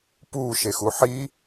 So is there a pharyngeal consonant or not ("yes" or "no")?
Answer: yes